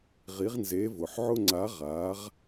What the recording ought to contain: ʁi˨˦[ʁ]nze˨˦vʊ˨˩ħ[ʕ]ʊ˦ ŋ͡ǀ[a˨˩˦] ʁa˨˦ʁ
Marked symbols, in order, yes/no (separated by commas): yes, yes, no